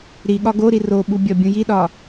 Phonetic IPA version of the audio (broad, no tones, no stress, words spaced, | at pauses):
ɾiɠɒ ɡoɾi roɓu bʲɒbʲũjiɗɒ